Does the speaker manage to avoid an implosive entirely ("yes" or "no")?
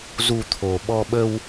no